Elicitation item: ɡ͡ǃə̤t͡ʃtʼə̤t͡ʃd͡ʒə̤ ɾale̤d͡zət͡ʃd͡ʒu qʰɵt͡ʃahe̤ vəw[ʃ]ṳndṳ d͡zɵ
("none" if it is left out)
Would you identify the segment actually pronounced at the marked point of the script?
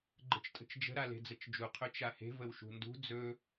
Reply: ʃ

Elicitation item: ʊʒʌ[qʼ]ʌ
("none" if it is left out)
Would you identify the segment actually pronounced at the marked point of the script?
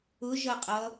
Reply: qʼ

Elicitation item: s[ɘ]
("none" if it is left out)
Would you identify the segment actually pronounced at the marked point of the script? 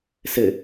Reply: ɘ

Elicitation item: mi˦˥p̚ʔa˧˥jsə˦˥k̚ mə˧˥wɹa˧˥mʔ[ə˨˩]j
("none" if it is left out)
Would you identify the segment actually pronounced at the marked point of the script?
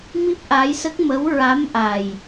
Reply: a˨˩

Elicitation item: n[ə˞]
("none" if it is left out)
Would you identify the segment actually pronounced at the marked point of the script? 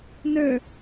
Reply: ə˞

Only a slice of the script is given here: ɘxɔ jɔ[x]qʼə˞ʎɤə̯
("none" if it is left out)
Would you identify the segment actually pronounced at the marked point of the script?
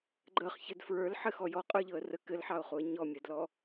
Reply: none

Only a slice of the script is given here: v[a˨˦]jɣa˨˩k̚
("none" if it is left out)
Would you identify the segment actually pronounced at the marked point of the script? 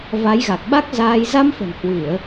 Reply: a˨˦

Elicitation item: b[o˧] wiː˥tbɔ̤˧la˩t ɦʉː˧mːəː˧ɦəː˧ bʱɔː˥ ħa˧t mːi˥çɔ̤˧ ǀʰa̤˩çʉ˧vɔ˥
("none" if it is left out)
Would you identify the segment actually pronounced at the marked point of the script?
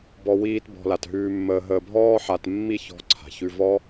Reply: ɔ˧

